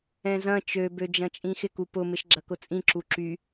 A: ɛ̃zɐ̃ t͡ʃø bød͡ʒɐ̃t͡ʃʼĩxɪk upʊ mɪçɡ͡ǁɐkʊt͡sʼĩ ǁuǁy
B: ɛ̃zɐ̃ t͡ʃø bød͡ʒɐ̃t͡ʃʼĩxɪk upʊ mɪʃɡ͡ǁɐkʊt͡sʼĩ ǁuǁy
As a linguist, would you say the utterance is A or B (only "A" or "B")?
B